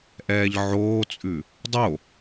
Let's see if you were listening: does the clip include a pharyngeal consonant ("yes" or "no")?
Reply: yes